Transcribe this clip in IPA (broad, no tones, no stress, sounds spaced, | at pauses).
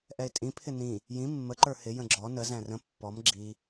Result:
ʔ ɛ ɪ̯ tʼ ĩ pʰ ɪ n ĩ | j ĩ mː ə ǃ ə˞ h ɪ j ə̃ ɡ͡ǁ ɔ n ə z æ̃ r ə̃ pː ɔ m ɡ͡ǁ i